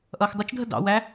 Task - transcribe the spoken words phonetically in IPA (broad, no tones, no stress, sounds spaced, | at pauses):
ʔ ʌː x dˤ ʊ t͡ʃ dʱ ə d ɑ̰ w æ